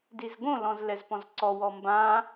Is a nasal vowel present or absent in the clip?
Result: present